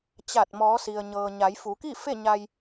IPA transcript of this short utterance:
t͡ɕa˧˩t̚mɔː˩˧ si˩ə̯ɲɤː˩ɲa˩˧jfu˩˧ ki˥˨fe˥˨ɲa˧j

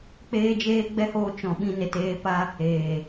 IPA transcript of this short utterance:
k͡peː˦d͡ʒeː˦ɡ͡bɛ˦hoː˧ t͡ʃɔ̃˨ ɓĩ˧ne˨teː˧pa˦ | eː˨

